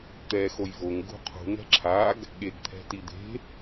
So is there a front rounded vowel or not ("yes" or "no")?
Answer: no